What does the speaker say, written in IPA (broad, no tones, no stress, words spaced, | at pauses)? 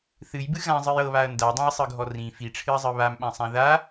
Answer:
θɨjbɨ ɣãzˤɨj ɤβaɐ̯ ndadˤãjsˤɯɡʱɔ rĩ fiʈ͡ʂʰɨɐ̯zˤɯ βamɓãsˤã ða